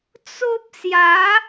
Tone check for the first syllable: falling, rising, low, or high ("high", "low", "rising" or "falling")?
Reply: high